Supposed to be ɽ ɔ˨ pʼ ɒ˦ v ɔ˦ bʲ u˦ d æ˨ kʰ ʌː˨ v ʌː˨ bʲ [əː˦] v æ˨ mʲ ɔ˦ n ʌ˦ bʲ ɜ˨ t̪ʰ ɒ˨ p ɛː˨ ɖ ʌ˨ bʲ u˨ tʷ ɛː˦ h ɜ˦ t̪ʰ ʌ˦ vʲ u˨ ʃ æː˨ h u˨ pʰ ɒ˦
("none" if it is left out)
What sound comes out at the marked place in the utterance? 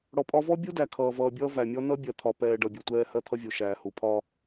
ʌː˦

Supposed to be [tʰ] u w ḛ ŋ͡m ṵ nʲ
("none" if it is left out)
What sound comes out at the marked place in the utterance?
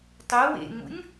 tˤ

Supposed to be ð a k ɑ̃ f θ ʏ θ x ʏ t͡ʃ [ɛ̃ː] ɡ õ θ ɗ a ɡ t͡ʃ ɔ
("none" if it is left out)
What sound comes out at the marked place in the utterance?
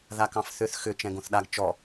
ɛ̃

